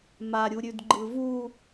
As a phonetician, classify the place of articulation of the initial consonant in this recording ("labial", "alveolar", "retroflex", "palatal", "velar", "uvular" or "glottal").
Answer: labial